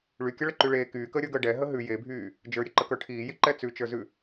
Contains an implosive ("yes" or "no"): no